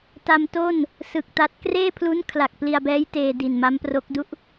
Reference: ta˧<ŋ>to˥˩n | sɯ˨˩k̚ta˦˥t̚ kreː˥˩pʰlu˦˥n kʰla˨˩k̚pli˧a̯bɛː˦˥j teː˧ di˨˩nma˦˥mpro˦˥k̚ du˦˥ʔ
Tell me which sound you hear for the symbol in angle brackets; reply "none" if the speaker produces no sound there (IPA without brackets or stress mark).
m